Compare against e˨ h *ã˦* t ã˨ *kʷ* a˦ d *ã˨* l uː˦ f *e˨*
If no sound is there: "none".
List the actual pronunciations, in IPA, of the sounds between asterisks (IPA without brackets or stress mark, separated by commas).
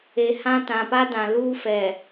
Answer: ã˦, p, ã˨, ɛ˨